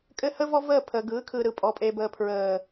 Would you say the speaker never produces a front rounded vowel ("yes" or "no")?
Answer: yes